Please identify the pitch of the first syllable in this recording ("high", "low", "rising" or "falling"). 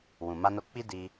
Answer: low